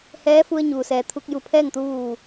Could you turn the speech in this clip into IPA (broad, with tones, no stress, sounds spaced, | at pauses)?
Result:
h ɛː˧˥ f u˧ ə̯ ɲ uː˩ s ɛː˩ t̪ʰ u˧ k̚ j u˧˩ pʰ ɛː˥˨ ŋ t̪ u˧ ʋ uː˧˩